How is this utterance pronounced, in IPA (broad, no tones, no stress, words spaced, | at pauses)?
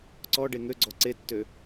ǀɔɖe ŋøɡ͡ǀɔ ǀetːø